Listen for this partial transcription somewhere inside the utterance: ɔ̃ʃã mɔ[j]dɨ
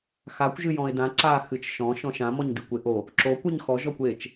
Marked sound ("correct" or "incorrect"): incorrect